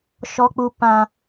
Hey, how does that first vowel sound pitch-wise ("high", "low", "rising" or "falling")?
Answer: high